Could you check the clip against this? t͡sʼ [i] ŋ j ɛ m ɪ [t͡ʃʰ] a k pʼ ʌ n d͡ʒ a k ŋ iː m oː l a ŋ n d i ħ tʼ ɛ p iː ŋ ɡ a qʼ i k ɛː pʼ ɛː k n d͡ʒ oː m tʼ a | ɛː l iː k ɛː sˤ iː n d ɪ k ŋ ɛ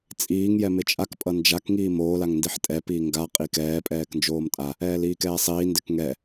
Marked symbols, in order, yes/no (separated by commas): no, no